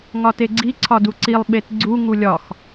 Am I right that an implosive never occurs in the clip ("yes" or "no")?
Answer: no